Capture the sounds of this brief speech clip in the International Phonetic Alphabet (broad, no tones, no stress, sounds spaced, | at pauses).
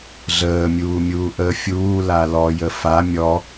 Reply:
ɮ əː mʲ uː mʲ uː ʔ əː fʲ uː l a l ɔ j ə f a mʲ ɔ